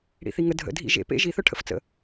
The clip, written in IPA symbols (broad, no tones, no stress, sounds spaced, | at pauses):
ɽ ḭ θ i ŋ ə dʱ ə̰ dʱ ḭ ʒ ḛ p ḛ ʒ i θ œ ʈʰ ə̰ f t͡s ə̰